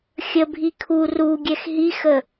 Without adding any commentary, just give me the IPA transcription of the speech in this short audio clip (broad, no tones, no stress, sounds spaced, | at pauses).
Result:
xʲ ə bʱ i kʰ u r u ɡʲ ɛ x ɦ i x ə